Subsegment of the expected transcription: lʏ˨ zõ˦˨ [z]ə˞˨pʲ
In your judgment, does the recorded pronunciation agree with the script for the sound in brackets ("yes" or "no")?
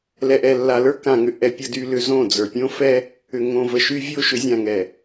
no